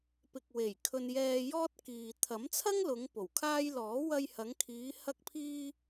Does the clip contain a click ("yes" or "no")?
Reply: no